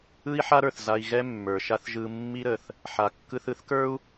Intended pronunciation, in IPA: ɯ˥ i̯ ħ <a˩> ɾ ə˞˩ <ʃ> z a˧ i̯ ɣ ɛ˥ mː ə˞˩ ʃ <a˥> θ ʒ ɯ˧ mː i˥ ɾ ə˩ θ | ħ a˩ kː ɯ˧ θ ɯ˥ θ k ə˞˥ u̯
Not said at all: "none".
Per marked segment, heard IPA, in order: a˥, θ, a˥

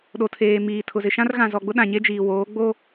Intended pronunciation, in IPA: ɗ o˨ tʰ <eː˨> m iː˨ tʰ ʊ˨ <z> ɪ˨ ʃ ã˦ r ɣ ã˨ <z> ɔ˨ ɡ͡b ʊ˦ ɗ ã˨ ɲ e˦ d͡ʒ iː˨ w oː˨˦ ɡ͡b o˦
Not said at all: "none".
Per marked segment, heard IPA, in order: eː˨, z, z

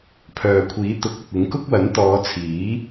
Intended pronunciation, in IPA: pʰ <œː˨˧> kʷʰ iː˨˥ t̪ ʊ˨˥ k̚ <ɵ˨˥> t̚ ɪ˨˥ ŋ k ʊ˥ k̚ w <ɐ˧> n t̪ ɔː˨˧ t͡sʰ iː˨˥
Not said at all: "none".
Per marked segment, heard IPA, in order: œː˨, ɵ˨, ɐ˨˥

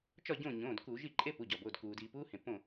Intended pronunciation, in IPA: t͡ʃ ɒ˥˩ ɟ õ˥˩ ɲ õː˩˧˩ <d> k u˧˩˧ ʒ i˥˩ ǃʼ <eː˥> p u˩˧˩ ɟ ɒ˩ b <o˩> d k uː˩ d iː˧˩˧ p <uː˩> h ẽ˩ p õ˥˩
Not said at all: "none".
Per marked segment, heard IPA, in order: d, e˥, o˩˧˩, uː˥

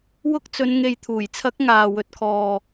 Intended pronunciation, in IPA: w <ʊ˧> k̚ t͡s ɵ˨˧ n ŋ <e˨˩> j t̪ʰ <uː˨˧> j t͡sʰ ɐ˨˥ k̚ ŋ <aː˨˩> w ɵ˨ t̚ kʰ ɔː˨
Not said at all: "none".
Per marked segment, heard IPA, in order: ʊ˧, e˨, uː˨˩, aː˨

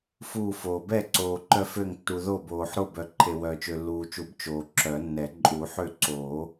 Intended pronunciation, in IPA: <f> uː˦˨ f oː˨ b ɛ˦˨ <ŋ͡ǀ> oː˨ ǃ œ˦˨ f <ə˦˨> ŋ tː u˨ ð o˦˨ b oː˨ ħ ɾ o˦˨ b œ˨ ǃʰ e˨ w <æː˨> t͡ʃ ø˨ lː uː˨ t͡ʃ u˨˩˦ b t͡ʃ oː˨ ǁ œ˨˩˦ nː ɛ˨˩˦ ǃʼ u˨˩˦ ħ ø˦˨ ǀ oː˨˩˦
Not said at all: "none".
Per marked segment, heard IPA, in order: f, ǀ, ø˦˨, œː˨

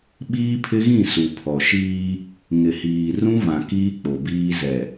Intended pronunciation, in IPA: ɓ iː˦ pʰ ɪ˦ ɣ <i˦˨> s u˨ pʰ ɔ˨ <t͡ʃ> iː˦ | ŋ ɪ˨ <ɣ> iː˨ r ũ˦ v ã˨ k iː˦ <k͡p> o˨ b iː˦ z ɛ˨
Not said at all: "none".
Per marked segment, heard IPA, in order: ĩ˦˨, ʃ, h, k͡p

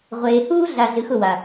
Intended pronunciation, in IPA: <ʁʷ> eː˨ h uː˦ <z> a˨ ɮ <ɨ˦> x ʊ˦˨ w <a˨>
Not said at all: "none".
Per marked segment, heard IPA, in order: ʁʷ, ɮ, ɨ˨, a˨

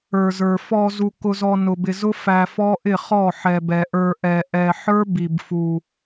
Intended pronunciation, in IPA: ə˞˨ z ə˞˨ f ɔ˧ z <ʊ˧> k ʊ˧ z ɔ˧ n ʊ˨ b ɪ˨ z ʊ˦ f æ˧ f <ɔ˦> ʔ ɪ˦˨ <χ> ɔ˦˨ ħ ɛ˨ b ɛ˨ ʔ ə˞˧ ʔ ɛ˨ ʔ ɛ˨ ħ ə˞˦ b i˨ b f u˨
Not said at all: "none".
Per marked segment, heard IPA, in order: u˧, ɔ˦, χ

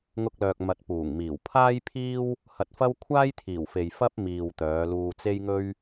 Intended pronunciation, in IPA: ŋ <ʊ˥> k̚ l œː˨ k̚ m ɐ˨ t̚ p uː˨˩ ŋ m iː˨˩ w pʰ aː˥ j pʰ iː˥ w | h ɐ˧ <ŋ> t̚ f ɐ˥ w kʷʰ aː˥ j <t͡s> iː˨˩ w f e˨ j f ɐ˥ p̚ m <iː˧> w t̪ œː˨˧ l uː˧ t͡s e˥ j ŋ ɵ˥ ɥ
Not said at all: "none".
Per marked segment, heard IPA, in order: ʊ˧, none, t̪ʰ, iː˨

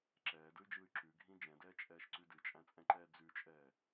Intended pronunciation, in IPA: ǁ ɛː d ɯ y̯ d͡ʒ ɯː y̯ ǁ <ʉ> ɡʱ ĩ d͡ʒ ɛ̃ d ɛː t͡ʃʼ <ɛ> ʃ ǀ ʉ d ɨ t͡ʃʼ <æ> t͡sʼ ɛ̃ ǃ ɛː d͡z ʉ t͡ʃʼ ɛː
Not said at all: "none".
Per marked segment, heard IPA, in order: ʉ, ɛː, æ̃

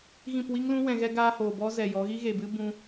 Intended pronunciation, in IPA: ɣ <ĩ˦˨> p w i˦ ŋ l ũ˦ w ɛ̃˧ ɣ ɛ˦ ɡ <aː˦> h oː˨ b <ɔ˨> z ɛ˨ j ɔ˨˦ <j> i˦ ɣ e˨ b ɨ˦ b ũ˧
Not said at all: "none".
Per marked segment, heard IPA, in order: ĩ˦˨, aː˦, ɔ˦, ɣ

